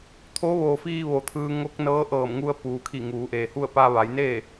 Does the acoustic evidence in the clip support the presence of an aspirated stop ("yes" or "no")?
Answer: yes